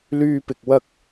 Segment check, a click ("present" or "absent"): absent